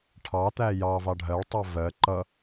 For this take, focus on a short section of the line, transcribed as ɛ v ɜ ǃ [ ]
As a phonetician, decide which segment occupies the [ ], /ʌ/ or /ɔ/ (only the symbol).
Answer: ʌ